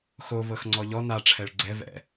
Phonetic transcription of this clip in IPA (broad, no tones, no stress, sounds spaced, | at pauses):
x o v ɤ x ŋ͡ǀ ɔ ʎ ɔ n a ʈ͡ʂʰ ɛ ɭ ɡ͡ǀ ɛ v ɛ̰